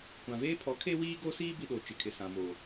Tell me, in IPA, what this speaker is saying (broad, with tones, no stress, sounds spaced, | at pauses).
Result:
kʷ ã˨ v eː˦ pʰ ɔ˨˦ kʰ e˦ w iː˦ ɡ o˦ s iː˦ b i˦ ɗ o˨ t͡ʃ ɪ˨ kʰ ɪ˨ s ã˨ m oː˨